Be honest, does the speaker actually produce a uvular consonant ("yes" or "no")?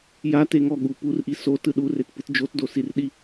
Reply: no